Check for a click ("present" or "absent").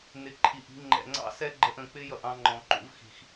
present